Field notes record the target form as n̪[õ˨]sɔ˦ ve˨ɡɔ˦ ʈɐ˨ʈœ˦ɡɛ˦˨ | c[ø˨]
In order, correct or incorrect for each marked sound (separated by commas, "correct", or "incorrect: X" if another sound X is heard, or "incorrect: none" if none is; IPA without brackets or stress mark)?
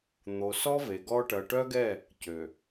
incorrect: o˨, correct